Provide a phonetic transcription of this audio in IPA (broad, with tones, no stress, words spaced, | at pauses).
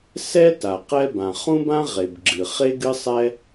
sɛ˥ ta˩qɛ˥bã˩ χũ˥bã˥ʁe˩bɡ͡ǁɨ˩ χe˥ɡɨ˥sˤɛ˥